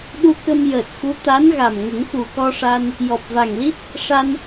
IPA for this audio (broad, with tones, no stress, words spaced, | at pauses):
ɗu˧kə˧mjəː˨˩t̚xu˧˥ t̪a˧˥nɣa˨˩m ŋə˨˩˦ŋxu˨˩kɔ˧ʂa˧n | jɔ˨˩p̚va˨˩ŋli˦˥t̚ | ʂa˧n